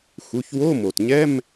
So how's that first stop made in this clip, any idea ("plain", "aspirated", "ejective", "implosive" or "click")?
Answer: plain